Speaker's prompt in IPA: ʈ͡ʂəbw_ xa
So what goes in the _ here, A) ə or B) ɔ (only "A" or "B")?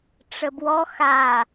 B